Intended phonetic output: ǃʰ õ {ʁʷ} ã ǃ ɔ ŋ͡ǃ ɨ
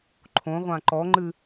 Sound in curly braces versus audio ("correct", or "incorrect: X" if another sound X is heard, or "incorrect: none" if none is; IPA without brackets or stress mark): correct